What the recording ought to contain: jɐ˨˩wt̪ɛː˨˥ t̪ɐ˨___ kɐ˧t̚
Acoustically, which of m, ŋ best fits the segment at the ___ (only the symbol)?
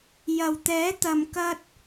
m